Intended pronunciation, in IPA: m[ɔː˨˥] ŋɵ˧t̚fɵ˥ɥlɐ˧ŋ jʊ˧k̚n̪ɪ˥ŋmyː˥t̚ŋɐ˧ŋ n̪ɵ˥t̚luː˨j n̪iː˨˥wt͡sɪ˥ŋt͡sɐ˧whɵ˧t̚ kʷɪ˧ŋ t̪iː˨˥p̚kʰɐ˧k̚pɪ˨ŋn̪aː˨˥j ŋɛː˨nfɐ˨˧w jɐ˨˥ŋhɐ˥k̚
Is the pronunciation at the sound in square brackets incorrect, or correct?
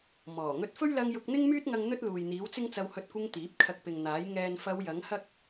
incorrect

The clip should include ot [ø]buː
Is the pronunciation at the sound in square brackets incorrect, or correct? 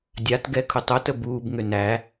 incorrect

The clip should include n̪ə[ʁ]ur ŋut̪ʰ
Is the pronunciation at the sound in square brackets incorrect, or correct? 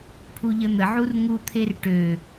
incorrect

